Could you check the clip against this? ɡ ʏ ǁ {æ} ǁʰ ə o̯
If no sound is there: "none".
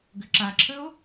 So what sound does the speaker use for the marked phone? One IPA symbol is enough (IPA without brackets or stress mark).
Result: a